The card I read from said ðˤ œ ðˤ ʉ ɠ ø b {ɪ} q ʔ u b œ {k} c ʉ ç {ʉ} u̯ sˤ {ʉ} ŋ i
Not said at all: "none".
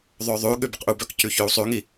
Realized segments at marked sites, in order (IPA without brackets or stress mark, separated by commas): ə, k, ø, ʉ